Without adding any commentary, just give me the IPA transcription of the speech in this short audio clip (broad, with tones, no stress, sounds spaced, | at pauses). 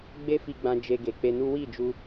ɡ͡b e˦ f i˧ ɡ͡b ã˧ d͡ʒ e˧ ɡ e˨ k͡p e˧ n u˦ w i˦˨ d͡ʒ u˧